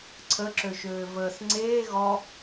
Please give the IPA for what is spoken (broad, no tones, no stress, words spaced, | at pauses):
ǀʰəǁøʃøː vəːs ŋ͡ǀeː ɣɔ